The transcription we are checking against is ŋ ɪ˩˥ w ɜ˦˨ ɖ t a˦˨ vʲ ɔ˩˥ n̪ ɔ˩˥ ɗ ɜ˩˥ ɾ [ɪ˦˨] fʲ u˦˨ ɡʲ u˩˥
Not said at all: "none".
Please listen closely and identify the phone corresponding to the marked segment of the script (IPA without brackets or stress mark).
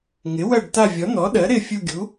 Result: ɪ˦˨